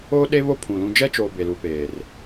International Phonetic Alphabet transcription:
oː˦ ɗ e˦ β o˦ pʰ ũ˨ l ũ˦ d͡ʒ ɛ˦ t͡ʃ oː˨ b e˨ l u˨ p eː˨ r

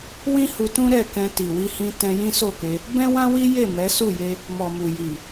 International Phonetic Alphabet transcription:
w ĩ˦ h u˧ t ũ˦ ɾ ɛ˦˨ k ɛ̃˧ t i˨ w i˧ h ĩ˧ t ɛ̃˧ j ĩ˦ s o˦˨ k e˧ | b ɛ̃˦ w ã˦ w i˦ j e˦˨ m ɛ˨˦ s u˦˨ j e˧ | m ɔ˨ m u˨ j i˨

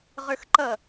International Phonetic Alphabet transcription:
ʁ ə˞ x ǃ ʌ

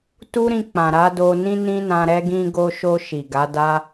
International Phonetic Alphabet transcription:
t u˦ ɾ ĩ˧ k͡p ã˨ ɾ a˨˦ d o˧ n ĩ˦ n ĩ˦ n ã˧ ɾ ɛ˧ ɡ ĩ˧ ɡ o˧ ʃ o˧ ʃ i˨ ɡ a˨˦ d a˦

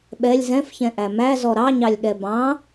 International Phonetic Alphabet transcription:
ɓ ɛ lʲ z ɛ̃ f ç ɛ̃ ʔ æ m æ z ɔ ɾ ɑ ɲ ɑ lʲ ɠ ɛ b ɑ̃

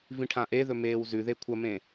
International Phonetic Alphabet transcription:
v ĩ ʈʰ ã ʔ e ð ɵ m eː w z ʉ ð e kʷʰ ɐ m ẽ

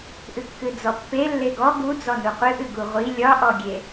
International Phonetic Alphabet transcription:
ʔ ɨ kː ɨ d͡z ɔ pː e lː e ɡ ɔ ɡ u d͡z ɔ n u qʷ ɨ ʔ ɨ ɡ u ʁʷ i lʲ ɒ ʔ ɔ ɡʲ e

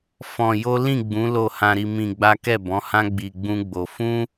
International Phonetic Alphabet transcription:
f ɔ̃˧ j o˦ l ĩ˦˨ ɡ͡b ũ˨˦ l o˦˨ h ã˧ ɾ i˧ m ĩ˧ ɡ͡b a˦ k ɛ˦˨ b ɔ̃˨˦ h ã˦ ɡ͡b i˧ ɡ͡b ũ˦ ɡ͡b o˧ f ũ˦

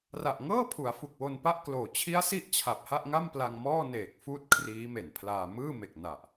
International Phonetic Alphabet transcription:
r a˨˩ ʔ ŋ ɤː˥˩ pʰ u˩˦ a̯ f u˨˩ k̚ w o˧ n p a˥˩ ʔ k l oː˨˩ t͡ɕʰ i˦˥ a̯ s i˦˥ ʔ t͡ɕʰ a˨˩ p̚ h a˥˩ ʔ ŋ a˥˩ m p l a˧ ŋ m ɔː˥˩ n eː˨˩ k̚ f uː˦˥ t̚ kʰ r iː˦˥ m e˨˩ n pʰ l aː˧ m ɯː˥˩ m e˨˩ k̚ n a˨˩ ʔ

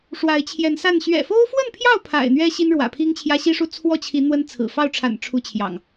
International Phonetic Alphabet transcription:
ʂ w a˨˦ ɪ̯ t͡ɕʰ j ɛ˨˦ n s a˥˨ n ɕ ɥ ɛ̰˨˩ f o˦ ʊ̯ f w ə˥˨ n pʰ j ɑ˥˨ ʊ̯ pʰ a̰˨˩ ɪ̯ n̪ ɥ ɛ˦ ɕ i˦ n ɻ w ä̰˨˩ pʰ i˦ ŋ t͡ɕʰ j ä˦ ɕ i˦ ʂ u˥˨ t͡sʰ w ɔ˥˨ t͡ɕʰ i˨˦ n̪ w ə˦ n t͡sʰ ɹ̩˨˩ f ɑ˥˨ ʊ̯ ʈ͡ʂʰ a̰˨˩ n ʈ͡ʂʰ u˦ t͡ɕʰ j ɑ̰˨˩ ŋ

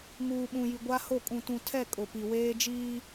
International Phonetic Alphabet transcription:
ŋ uː˨ ɓ ũ˨ j i˨ ɡʷ a˦ h o˦˨ kʼ ũ˨ t ũ˨ tʰ ɛ˦˨ kʼ ʊ˨ p i˨ w eː˦ d͡ʒ iː˦

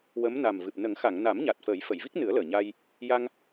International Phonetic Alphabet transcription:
w ə˧˥ m n a˨˩ m v ɨ˨˩ p̚ n ə˨˩˦ ŋ x a˨˩˨ ŋ n a˨˩˦ m ɲ a˨˩ t̚ f ə˨˩˦ j f ə˨˩˨ j v i˦˥ k̚ n ɨ˨˩˦ ə̯ l əː˨˩ ɲ a˧ j | j a˧ ŋ

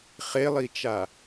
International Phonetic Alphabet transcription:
χ e lˠ i t͡ʃ a

